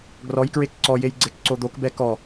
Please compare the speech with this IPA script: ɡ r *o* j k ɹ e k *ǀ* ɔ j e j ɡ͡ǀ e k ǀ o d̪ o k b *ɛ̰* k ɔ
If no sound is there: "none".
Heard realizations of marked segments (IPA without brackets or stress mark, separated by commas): ɔ, ǀ, ɛ